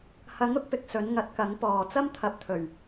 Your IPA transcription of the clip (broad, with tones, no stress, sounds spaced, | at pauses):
h ɐ˨˥ ŋ ʊ˨˥ k̚ p ɪ˧ k̚ s ɵ˨˥ n ŋ ɐ˨˥ t̚ k ɐ˨˥ ŋ p ɔː˨˩ t͡s ɐ˥ m t̪ʰ ɐ˨˥ p̚ t̪ʰ ɵ˨˩ ɥ